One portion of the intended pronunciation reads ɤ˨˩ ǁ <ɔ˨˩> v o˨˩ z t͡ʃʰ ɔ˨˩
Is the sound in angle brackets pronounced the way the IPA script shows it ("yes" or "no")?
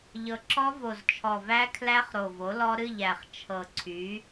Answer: no